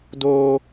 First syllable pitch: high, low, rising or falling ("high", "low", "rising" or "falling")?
high